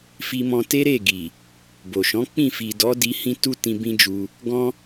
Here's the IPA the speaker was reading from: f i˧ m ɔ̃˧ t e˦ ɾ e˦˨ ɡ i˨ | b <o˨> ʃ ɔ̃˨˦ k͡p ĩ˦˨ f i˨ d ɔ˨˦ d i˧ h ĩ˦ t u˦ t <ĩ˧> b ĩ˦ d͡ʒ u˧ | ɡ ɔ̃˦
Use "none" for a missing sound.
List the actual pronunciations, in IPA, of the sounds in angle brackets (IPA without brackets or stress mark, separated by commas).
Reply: o˨, ĩ˧